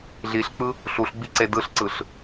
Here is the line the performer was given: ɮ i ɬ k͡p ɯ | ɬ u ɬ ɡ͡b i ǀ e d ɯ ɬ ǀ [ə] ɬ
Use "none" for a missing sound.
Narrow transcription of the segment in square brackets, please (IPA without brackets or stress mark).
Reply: ɯ